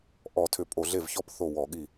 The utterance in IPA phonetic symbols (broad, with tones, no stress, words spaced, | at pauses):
ʔɔ˧˩˧tʰʏ˧˩˧ pʼo˧˩˧ɮe˥˩vçɔ˥˧p θo˥˩wɔ˧˩˧ɠi˥˩